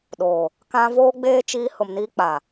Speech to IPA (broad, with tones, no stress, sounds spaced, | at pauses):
ɗ oː˨ | k ã˦ v oː˦ ɡ͡b eː˦ t͡ʃ iː˦ h ʊ˨ m n iː˦ k͡p a˨